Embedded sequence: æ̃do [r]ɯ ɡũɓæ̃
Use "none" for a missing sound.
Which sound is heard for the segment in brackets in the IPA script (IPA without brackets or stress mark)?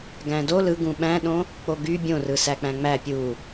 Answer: l